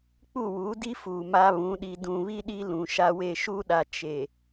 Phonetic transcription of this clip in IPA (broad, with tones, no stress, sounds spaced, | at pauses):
k͡p u˦˨ w u˨˦ d i˦ f uː˨ m a˦ β ũ˨˦ ɗ i˨ d ũ˨ β i˦ ɗ i˦ l ũ˨ ʃ a˦ w e˦˨ ʃ uː˦ ɗ a˨ t͡ʃ e˨